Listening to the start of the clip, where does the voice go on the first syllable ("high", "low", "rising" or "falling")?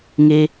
high